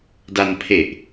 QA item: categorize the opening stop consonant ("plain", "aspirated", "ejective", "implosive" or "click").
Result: plain